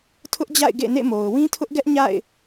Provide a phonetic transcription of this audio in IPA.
tʰʊ˦ʔd͡ʑa̰˦˨ɪ̯ ɡḛ˦˨nḛ˦˨mo˨ʊ̯ wĩ˦tʰʊ˦ʔɡɛ˦ʔ ɲa̰˦˨ɪ̯

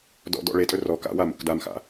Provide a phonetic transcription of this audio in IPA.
dɔ̰dɔ̰ ɭetʼɵ rɔ ka̰wamṵk damxa̰

